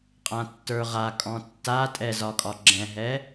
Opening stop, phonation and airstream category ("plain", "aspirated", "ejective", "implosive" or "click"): ejective